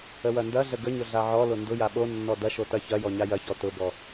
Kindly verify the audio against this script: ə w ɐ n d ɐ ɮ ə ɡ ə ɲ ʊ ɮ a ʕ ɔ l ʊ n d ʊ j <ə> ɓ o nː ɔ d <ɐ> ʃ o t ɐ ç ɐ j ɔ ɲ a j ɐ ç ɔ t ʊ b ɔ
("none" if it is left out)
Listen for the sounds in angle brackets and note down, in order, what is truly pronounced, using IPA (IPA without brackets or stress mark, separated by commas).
a, ɐ